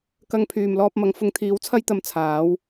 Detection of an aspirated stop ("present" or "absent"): present